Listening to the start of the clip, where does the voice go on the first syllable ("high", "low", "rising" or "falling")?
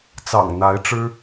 low